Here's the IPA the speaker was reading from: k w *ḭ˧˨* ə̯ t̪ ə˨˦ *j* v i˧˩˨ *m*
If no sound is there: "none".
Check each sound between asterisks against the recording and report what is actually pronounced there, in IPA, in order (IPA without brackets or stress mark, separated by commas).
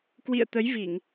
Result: ḭ˧˨, j, ŋ